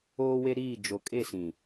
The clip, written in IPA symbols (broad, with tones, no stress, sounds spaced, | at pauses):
oː˦ w e˦ ɾ iː˦˨ d͡ʒ o˨ kʼ e˦˨ s ĩ˨